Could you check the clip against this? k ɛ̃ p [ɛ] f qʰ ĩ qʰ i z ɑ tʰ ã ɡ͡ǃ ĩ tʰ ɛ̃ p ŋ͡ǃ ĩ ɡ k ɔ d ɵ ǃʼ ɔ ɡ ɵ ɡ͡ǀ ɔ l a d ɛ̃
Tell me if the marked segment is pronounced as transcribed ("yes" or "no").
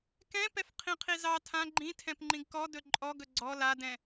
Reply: yes